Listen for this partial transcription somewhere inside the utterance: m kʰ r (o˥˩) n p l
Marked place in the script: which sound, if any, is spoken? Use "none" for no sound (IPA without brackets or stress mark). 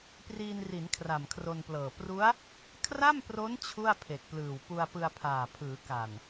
o˧